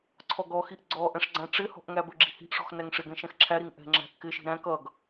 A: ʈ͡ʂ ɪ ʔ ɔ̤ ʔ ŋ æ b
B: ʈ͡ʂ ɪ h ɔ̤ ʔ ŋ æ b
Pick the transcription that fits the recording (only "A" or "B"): B